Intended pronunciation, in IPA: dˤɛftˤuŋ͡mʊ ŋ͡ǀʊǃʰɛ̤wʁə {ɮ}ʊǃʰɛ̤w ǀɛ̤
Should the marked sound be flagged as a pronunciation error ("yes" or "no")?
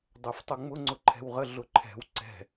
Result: no